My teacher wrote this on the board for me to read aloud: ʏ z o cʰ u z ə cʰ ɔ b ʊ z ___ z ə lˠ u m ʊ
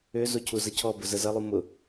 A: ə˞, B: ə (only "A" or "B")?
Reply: B